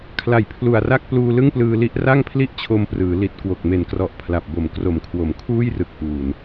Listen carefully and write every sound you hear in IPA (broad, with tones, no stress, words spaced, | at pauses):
kʰla˨˩jpʰlu˨˩a̯ra˥˩k̚ pluː˧lɯ˥˩ŋplɯː˧li˦˥ʔ ra˥˩ŋpʰli˥˩ʔt͡ɕʰo˧mprɯː˩˦ li˨˩t̚kwo˨˩k̚ me˨˩nkrɔ˨˩ʔ pʰla˨˩p̚bo˨˩m kro˨˩mkʰwo˩˦mkʰuː˥˩jrɯ˨˩k̚ ʔuː˨˩n